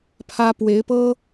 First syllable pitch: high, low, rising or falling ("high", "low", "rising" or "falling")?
high